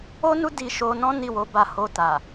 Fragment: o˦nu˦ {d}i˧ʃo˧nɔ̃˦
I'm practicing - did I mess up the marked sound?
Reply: no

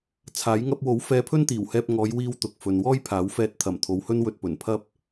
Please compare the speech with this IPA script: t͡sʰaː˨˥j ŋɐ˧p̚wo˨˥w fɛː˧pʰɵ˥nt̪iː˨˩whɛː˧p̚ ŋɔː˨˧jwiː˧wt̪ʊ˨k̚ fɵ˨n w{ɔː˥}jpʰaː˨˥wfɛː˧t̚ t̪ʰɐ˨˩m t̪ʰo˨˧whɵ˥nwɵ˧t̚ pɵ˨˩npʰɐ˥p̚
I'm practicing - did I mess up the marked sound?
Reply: no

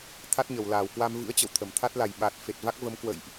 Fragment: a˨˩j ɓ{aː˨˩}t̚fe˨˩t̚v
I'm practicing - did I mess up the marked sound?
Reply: no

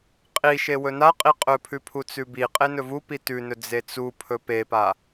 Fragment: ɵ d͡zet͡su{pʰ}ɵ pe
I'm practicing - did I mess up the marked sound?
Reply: no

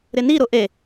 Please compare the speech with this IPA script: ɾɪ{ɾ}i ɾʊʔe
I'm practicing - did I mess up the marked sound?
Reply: yes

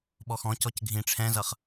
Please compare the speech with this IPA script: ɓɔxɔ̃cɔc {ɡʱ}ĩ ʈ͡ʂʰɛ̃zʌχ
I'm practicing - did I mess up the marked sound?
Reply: no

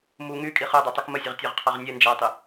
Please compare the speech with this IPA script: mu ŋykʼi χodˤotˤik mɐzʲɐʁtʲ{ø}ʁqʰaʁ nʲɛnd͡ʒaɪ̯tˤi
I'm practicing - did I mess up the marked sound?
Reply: no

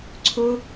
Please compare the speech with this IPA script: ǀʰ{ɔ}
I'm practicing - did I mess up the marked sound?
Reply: yes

